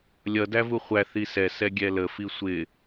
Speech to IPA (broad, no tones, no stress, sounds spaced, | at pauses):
lʲ ʌ d æ v u χʷ æ θ i s ɛ s ɛ ɡʲ ɛ l ə f i sʷ ɪ